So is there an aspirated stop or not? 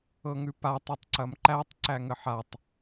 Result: no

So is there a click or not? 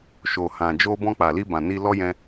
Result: no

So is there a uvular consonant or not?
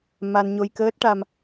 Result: no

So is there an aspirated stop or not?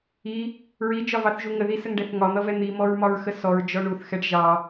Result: no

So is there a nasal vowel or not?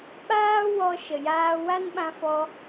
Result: yes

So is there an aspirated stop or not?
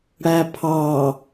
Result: yes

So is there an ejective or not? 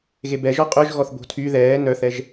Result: yes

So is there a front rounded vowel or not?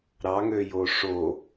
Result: yes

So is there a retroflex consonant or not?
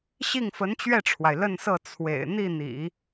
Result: yes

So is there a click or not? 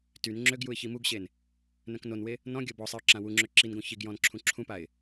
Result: yes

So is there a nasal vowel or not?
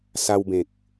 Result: yes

